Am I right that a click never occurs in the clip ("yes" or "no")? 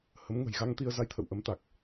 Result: yes